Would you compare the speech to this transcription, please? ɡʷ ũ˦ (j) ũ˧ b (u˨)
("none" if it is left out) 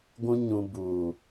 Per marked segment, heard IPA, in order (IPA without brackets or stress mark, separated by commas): ɲ, u˨